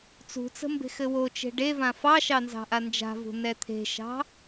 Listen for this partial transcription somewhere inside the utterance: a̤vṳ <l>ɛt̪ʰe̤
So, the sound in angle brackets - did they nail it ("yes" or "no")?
no